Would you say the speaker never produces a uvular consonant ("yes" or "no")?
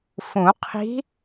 no